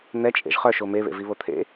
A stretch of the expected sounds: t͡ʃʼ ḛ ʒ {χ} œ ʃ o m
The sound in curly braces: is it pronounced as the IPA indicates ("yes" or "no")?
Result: yes